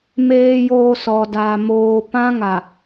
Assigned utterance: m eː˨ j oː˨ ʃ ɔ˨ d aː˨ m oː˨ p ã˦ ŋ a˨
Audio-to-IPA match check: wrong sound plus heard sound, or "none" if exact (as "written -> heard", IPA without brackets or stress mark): ʃ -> s